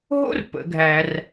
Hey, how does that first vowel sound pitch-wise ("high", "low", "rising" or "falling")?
high